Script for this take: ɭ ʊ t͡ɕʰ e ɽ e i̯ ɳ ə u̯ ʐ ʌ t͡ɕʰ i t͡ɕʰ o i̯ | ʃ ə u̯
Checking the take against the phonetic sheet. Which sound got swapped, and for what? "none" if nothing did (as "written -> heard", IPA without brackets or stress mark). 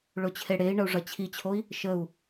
none